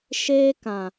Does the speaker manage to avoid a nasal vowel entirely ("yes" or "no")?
no